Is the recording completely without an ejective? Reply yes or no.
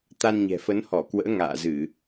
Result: yes